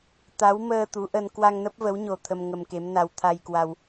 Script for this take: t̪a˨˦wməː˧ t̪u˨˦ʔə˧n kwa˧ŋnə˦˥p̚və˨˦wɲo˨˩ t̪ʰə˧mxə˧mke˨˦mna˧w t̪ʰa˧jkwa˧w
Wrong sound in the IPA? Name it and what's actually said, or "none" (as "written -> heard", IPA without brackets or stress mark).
x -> ŋ